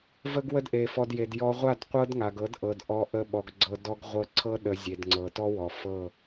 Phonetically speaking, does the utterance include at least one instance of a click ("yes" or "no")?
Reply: yes